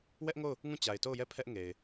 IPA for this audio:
w ɛ˦ ʔ ŋ o˦˨ ʊ̯ | ŋ ũ˦˨ t͡ɕ a˨ ɪ̯ t o˦˨ ʊ̯ j ɛ˦˨ pʰ ɛ˦ ʔ ŋ e˨ ɪ̯

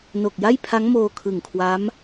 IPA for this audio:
n o˨˩ k̚ j a˥˩ j pʰ a˦˥ ŋ m oː˧ kʰ ɯ˨˩ ŋ kʰ w a˦˥ m

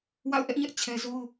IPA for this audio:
w a̰˦˨ ʊ̯ ʔ ɛ˦ ʔ ɲ ɛ˦ ʔ t͡ɕʰ ɛ˦ z o˦ ʊ̯

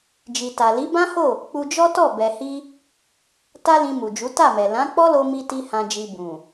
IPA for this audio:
d͡ʒ i˨ t a˨ l i˨˦ b ã˦ h o˦˨ | k͡p u˧ d͡ʒ ɔ˦ t ɔ˦˨ b ɛ˨ h i˧ | t a˦ l ĩ˧ m u˨ d͡ʒ u˨˦ t a˦˨ m ɛ˨ l ã˨˦ k͡p ɔ˦ l o˧ m i˧ t i˦ h ã˧ d͡ʒ i˧ b ũ˨

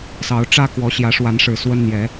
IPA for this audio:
s ɑ˨˦ ʊ̯ ʈ͡ʂ ä˦ k w ɔ˨˦ ɕ j ä˨˦ ʂ w a˨˦ n ʂ ɻ̩˨˩ s w ə˦ n n̪ j ɛ˨˦

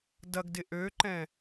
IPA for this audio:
d ɐ ɡ d ɪ ʔ ø ǃ ɛ̃

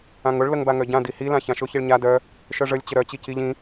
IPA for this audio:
ã ŋ ʊ ɭ l ə ŋ b a ŋ œ ɟ ã d i h i l ã ç ã ʃ ʊ ç i ɭ ɲ a d œ | ʃ œ ʐ ə lʲ t͡ɕ ə ɾ œ t͡ɕ i c i ʎ ĩ

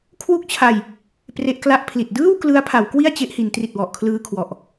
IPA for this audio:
kʰ w u˥˩ k̚ t͡ɕʰ a˧ j | p r e˦˥ ʔ k l a˥˩ ʔ pʰ l i˨˩ t̚ d ɯː˥˩ w k l ɯ˦˥ a̯ pʰ a˩˦ w k w i˥˩ a̯ t͡ɕ e˦˥ ʔ h i˩˦ n t r i˨˩ t̚ w ɔ˨˩ ʔ kʰ l ɯː˧ kʰ w ɔ˨˩ ʔ

